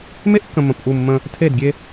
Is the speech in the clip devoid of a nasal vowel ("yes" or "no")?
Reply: no